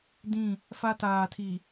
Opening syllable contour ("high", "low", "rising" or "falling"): falling